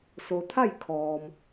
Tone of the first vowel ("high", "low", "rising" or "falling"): low